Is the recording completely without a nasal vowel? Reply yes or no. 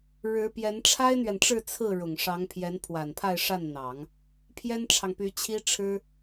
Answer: yes